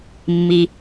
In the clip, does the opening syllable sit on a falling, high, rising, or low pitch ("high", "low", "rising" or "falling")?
low